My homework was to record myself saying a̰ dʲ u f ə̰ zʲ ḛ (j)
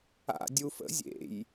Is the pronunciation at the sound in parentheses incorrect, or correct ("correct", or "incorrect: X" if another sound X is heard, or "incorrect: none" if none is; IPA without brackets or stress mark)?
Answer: correct